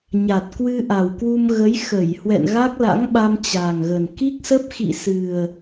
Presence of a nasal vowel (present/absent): absent